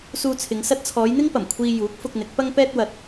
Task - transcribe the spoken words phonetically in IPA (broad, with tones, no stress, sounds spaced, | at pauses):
s uː˧ t͡sʰ ɪ˨˧ ŋ s ɐ˧ t̚ t͡sʰ ɔː˨˧ j n̪ ɪ˥ ŋ p ɐ˨˩ m kʷʰ iː˧ j uː˨˥ k̚ f ʊ˧ k̚ n̪ ɪ˨˥ k̚ p ɐ˥ ŋ p ɛː˧ t̚ w ɐ˨ t̚